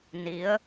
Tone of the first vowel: rising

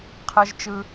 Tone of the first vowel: high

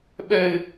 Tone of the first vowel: high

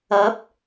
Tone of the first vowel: rising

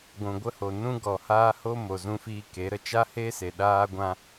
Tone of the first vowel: low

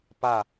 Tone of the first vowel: falling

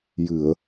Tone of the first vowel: low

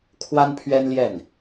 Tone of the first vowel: high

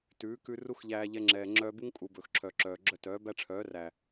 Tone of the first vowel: rising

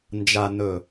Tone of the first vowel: low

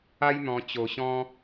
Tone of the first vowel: high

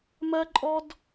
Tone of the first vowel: high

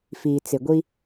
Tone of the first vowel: low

